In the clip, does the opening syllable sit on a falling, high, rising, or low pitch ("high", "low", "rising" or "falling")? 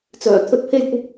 low